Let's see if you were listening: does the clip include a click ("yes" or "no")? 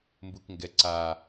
yes